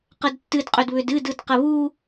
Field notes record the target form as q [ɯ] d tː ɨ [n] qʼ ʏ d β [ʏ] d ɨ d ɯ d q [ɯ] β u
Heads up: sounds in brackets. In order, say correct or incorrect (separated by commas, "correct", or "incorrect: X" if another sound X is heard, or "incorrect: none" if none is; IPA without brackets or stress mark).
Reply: incorrect: ə, incorrect: d, correct, incorrect: ə